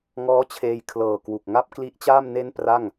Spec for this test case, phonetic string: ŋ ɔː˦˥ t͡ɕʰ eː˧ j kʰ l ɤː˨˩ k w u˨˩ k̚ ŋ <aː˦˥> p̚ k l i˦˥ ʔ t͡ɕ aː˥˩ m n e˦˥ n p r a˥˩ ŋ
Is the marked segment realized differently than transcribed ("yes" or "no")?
yes